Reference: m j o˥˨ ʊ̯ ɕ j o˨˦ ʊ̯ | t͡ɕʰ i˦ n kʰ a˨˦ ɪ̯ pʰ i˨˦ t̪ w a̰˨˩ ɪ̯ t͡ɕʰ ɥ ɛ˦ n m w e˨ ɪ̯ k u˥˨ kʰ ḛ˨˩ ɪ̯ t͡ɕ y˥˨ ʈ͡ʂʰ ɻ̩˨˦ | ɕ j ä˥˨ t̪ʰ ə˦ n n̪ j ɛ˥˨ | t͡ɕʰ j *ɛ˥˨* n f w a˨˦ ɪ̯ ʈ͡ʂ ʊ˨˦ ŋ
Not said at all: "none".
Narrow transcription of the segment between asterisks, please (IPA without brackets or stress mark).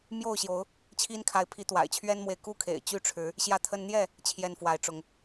ɛ˥˨